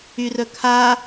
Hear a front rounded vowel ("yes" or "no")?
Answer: yes